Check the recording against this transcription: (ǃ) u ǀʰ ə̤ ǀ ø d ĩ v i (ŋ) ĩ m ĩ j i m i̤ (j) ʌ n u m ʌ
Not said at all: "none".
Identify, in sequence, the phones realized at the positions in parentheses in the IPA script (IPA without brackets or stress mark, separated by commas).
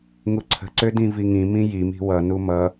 ŋ, ŋ, w